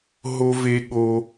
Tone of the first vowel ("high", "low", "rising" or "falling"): high